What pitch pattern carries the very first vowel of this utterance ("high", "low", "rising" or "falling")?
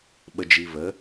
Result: low